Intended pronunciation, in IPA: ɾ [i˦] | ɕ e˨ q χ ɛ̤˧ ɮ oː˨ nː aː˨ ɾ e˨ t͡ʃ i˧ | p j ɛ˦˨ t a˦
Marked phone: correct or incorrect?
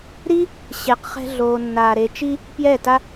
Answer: correct